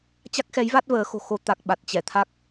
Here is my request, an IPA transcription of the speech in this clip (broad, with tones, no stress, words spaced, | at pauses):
t͡ɕa˦˥k̚xɛ˨˦jva˦˥t̚ vəː˨˦xo̤˨˩xo˧ t̪a˨˩k̚ ɓa˨˩t̚t͡ɕɛ˧˩t̪ʰa˦˥k̚